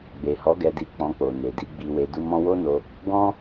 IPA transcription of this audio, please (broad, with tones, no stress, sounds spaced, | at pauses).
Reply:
ɡ͡b e˨ h ɔ˨˦ ɡ ɛ˧ d i˧ k͡p ɔ̃˧ k͡p o˨ n e˨ d i˧ ɡ͡b i˧ w e˧ d u˦ m ɔ̃˦ w o˦ n o˧ | ɡ ɔ̃˦